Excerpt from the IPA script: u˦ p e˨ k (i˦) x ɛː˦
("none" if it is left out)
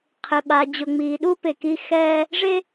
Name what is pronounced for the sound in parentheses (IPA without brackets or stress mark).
i˦